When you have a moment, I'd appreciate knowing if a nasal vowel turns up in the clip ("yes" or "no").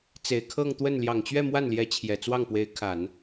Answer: no